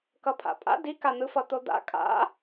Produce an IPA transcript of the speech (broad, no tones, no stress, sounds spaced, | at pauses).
k ʌ pʰ a̰ pʼ a̰ d i k a n̪ ɯ f ʌ t̪ o d̪ a̰ kʼ a̰